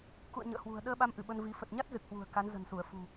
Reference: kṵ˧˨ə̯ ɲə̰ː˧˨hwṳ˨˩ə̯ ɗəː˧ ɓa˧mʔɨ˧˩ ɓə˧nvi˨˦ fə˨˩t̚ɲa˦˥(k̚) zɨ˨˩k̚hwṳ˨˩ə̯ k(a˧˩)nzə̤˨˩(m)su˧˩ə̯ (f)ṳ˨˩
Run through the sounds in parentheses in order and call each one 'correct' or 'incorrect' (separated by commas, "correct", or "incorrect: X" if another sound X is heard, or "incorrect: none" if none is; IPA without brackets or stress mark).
incorrect: t̚, incorrect: a˨˦, incorrect: n, correct